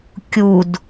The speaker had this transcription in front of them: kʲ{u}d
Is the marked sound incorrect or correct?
correct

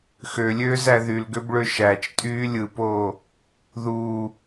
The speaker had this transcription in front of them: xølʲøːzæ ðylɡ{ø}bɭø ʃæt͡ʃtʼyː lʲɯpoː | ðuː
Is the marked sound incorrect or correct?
correct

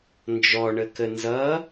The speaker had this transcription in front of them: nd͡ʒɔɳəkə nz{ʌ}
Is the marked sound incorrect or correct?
correct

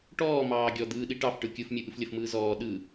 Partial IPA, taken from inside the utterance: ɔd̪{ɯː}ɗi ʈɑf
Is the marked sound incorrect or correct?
correct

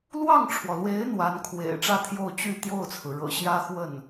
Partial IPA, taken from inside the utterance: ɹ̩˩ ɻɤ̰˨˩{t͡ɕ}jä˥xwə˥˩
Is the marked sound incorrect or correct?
incorrect: ɕ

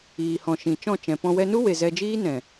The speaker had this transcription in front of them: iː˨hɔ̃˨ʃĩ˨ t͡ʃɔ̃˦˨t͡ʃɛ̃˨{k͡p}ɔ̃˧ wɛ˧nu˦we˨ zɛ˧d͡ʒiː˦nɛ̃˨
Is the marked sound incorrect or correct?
incorrect: p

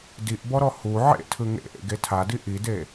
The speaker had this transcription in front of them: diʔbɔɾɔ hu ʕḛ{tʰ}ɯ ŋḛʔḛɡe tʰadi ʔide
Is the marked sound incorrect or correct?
correct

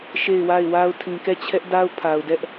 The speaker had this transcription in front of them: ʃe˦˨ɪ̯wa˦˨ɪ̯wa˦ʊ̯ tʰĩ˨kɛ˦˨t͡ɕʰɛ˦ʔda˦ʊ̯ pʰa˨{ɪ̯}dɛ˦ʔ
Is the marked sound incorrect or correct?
incorrect: ʊ̯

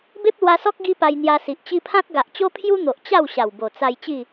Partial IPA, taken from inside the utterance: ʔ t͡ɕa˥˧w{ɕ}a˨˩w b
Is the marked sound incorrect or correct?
correct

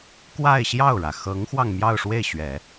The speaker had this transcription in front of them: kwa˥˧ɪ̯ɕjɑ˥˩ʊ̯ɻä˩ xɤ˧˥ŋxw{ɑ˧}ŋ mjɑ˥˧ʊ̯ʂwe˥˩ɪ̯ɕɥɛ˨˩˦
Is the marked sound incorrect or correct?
correct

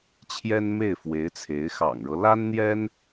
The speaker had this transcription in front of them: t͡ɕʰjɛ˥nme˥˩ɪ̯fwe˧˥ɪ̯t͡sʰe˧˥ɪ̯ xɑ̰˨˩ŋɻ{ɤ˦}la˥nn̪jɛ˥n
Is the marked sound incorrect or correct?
correct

